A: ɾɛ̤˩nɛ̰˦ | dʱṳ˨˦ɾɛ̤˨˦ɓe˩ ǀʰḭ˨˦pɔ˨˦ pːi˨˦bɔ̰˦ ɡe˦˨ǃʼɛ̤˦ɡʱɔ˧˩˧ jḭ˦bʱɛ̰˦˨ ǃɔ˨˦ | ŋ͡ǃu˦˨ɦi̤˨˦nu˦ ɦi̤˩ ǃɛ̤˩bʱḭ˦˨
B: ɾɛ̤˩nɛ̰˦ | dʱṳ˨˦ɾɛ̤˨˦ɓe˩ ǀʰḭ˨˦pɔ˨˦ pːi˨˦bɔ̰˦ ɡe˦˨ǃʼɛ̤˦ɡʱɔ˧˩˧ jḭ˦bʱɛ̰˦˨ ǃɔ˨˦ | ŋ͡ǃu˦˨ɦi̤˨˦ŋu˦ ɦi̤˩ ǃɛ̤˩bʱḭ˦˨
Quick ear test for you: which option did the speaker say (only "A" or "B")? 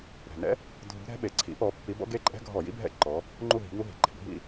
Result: B